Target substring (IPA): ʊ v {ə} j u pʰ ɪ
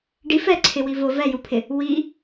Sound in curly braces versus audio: incorrect: ɛ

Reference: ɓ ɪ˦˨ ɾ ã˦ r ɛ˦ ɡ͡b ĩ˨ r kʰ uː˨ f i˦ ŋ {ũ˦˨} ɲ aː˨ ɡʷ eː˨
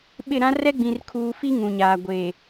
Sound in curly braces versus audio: incorrect: ũ˨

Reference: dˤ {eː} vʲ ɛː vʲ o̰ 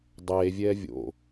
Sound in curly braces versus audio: correct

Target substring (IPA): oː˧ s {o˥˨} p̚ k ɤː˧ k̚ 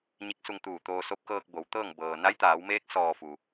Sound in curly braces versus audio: incorrect: o˧˥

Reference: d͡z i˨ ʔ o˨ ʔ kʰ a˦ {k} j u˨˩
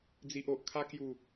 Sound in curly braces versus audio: correct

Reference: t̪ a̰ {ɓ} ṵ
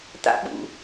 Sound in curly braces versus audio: correct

